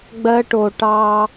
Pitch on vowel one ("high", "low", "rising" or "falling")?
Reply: high